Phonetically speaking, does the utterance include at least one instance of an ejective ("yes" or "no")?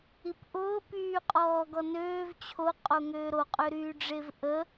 yes